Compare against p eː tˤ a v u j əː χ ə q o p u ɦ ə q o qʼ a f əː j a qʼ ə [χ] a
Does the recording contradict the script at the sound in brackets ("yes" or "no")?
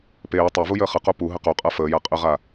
yes